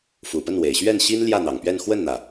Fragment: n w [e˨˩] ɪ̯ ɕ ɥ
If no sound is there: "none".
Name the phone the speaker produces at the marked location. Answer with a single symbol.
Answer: e˨˩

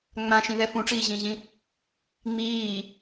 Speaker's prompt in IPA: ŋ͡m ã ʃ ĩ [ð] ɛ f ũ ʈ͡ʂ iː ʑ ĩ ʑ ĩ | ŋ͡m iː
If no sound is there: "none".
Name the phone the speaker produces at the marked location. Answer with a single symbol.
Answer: ð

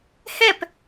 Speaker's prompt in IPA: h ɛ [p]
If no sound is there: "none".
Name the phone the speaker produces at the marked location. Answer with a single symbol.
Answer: p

